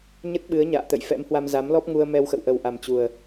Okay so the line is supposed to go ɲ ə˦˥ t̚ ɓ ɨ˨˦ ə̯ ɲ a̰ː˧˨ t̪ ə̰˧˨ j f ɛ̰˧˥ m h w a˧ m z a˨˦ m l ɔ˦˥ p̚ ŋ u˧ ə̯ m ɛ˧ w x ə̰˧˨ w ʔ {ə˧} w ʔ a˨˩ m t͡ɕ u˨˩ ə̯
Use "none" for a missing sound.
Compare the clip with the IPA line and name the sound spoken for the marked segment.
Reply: ə˨˩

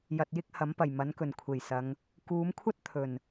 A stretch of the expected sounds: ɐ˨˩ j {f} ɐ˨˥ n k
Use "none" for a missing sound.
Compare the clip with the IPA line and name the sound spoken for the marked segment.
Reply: m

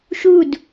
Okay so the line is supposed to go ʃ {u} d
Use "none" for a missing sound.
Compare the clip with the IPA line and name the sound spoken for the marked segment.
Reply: u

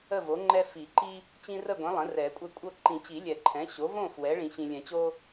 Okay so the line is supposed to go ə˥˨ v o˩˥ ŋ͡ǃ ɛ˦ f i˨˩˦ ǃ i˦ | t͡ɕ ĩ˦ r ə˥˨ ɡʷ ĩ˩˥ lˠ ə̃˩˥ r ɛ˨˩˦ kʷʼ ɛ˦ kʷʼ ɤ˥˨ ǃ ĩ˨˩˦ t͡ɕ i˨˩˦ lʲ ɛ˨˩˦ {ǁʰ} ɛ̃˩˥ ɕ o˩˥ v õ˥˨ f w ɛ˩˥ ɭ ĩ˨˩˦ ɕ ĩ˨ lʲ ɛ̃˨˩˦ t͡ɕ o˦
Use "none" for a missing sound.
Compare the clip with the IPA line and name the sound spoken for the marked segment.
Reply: ǃʰ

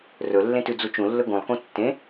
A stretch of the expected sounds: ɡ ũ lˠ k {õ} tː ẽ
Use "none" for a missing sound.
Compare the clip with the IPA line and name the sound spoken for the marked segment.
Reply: ũ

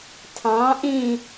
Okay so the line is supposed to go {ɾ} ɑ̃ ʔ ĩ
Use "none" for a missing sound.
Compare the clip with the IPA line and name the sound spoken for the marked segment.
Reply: tʰ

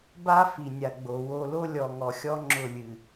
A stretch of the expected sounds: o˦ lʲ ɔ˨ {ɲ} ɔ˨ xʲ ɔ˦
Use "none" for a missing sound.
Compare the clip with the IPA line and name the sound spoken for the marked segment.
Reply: ŋ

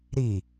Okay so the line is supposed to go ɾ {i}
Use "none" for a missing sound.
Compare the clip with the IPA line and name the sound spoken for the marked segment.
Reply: i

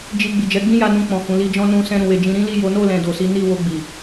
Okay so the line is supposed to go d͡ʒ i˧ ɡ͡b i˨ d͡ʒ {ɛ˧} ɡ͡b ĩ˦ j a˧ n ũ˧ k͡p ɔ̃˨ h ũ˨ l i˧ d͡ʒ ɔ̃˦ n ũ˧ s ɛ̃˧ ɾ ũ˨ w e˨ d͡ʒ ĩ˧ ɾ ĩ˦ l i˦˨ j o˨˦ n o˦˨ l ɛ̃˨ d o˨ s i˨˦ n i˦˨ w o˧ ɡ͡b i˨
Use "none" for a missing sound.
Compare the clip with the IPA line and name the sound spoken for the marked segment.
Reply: ɛ˨˦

